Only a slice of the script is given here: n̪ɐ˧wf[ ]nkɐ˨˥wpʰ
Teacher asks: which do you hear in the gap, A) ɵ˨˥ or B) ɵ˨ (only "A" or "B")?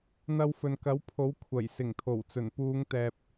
B